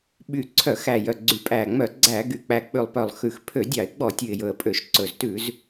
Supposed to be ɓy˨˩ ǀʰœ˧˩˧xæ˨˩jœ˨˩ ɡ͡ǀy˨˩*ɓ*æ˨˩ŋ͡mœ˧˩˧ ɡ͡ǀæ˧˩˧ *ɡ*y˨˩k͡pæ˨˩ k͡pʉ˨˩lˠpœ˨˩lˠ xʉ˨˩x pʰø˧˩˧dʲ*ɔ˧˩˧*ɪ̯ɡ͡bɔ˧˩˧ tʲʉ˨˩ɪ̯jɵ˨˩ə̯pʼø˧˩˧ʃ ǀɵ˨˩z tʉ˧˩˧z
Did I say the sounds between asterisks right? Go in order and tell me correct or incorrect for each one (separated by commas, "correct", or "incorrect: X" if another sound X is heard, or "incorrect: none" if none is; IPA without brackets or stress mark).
incorrect: pʼ, correct, incorrect: ɑ˧˩˧